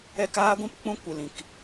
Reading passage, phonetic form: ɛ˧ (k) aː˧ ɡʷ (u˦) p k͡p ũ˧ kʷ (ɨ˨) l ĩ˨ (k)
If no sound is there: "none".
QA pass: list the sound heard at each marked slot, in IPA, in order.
k, ũ˦, ɨ˨, k

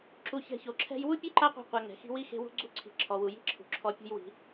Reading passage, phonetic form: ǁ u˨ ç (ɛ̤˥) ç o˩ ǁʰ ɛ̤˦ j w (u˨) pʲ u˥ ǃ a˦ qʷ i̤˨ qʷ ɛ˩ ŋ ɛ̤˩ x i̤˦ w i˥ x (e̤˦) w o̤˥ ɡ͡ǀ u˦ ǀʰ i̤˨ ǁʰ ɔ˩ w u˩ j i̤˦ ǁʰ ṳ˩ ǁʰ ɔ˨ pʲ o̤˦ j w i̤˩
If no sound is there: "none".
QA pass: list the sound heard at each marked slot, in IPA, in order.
ɛ̤˨, u˥, e̤˦

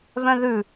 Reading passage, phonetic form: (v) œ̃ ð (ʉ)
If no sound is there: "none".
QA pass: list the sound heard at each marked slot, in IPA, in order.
v, ʉ

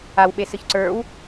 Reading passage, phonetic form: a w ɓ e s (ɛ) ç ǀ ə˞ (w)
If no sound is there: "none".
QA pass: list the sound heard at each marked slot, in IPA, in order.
ɨ, w

